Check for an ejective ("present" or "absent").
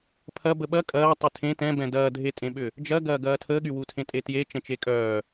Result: present